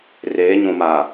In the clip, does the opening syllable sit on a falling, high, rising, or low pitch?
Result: rising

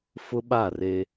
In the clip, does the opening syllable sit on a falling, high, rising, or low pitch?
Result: high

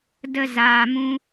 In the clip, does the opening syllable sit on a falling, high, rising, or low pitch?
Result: high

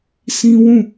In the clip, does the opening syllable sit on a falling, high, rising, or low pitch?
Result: high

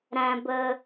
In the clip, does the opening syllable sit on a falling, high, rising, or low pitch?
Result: low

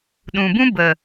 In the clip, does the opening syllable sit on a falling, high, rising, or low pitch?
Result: low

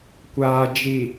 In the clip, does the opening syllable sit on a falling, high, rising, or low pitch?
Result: low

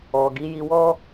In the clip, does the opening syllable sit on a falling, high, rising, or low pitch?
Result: low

